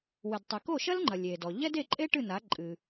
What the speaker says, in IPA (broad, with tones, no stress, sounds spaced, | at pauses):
w ɨ˩ d tˤ ɨ˩ k o˥˩ ʃ ɐ˥ l ŋ͡ǃ ɐ˩ lʲ e˩ d ɔ˩ ʎ ɛ˥ d e˥˩ ǃʼ e˥ ʈ ɨ˥˩ n a˩˥ ǃʼ ɨ˩